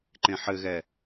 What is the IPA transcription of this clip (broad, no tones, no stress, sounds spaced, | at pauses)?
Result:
ǃ ẽ ħ ɘ ɣ ɛ